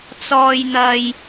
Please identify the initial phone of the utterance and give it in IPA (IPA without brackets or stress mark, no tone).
t͡s